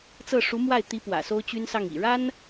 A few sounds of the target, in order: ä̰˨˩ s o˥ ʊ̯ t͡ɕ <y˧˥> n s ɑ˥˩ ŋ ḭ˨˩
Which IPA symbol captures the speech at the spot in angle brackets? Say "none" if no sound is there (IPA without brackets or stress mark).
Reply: y˥